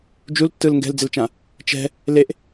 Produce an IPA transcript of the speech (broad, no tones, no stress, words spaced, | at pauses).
d͡ʒultːɯl ŋɡɛ̤ld͡zelt͡ʃã | t͡ʃɛ̤ | leʔ